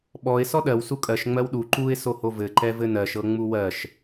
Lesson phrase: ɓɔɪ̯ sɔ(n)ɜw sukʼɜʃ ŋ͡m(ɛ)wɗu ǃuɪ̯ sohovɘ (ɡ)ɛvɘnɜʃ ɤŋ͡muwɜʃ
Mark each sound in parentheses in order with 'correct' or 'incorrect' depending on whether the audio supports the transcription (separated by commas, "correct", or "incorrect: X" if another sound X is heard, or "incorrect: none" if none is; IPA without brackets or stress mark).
incorrect: ɗ, incorrect: ɜ, incorrect: ǃ